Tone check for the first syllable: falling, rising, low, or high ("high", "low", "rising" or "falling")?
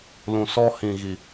low